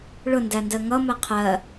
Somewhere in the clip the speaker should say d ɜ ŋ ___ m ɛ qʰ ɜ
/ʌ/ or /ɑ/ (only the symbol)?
ʌ